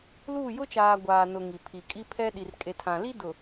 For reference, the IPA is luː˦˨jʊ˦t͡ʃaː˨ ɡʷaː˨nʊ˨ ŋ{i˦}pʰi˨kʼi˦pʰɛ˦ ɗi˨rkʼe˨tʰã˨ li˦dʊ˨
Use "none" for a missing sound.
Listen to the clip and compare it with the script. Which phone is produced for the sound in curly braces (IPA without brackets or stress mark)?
i˨